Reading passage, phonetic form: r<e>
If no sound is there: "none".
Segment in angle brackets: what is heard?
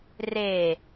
e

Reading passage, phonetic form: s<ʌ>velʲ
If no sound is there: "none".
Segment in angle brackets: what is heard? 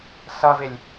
ʌ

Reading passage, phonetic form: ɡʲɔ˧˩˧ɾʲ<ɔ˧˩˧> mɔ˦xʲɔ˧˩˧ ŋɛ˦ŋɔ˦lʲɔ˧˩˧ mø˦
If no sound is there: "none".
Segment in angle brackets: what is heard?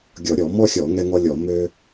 ɔ˧˩˧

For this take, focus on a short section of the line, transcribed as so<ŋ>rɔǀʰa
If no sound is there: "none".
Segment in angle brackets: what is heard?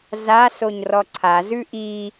ɲ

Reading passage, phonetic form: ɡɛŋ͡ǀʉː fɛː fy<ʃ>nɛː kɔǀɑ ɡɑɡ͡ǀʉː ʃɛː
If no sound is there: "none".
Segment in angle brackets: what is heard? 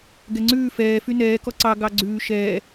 none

